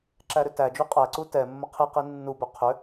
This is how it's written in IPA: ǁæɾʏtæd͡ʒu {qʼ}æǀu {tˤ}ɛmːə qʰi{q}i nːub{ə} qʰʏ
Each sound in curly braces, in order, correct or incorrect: correct, incorrect: t, correct, incorrect: ʏ

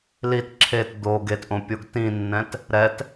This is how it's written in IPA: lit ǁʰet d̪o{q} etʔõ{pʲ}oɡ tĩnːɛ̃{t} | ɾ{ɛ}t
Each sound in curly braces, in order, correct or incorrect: incorrect: ɡ, correct, correct, correct

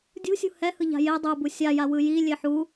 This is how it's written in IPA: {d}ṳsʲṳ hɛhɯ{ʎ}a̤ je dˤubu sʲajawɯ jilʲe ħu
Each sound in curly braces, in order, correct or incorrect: incorrect: dʲ, correct

